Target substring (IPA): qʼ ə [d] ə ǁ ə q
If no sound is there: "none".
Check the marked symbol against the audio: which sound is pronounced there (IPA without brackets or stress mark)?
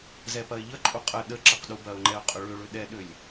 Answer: ɗ